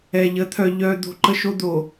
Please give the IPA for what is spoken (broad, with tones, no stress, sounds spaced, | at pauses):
ɛ˨ ʎ ə˨˦ t̪ʰ œ˨ ʎ œ˨ d̪ o̤˦ ǃ ə˦ ʃ o˦ d̪ o˨